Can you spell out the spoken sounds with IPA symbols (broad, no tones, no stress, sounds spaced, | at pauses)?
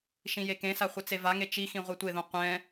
ʃ ĩ j e k ẽ s a χʷ ɯ t͡s e v a ŋ e t͡ʃ i x ĩ ʁʷ e tʷ e ð õ qʷ ɛ̃